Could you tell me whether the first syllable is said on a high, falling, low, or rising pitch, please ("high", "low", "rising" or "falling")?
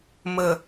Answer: low